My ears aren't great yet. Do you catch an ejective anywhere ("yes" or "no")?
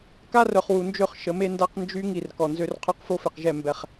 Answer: no